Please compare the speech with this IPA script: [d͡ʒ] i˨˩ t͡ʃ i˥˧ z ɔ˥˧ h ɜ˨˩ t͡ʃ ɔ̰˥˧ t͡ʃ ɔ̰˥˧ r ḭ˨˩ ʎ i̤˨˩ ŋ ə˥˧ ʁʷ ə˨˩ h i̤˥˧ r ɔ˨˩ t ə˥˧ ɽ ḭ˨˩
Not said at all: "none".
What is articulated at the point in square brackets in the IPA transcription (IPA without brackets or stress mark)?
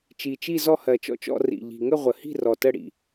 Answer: t͡ʃ